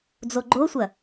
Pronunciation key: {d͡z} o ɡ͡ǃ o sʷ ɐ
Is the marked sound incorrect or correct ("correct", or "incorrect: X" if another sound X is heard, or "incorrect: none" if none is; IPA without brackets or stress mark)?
correct